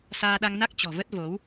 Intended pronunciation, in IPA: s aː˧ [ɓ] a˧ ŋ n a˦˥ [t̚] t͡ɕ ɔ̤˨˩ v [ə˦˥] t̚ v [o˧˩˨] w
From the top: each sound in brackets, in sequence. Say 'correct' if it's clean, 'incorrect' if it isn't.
incorrect, incorrect, correct, incorrect

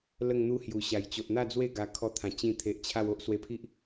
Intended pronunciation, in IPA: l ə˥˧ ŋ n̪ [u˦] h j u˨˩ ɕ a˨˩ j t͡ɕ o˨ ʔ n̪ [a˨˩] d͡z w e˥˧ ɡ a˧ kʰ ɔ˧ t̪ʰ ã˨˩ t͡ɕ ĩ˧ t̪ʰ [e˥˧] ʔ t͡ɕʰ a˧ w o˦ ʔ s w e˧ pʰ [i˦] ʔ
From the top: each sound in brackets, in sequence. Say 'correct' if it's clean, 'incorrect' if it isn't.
correct, incorrect, incorrect, correct

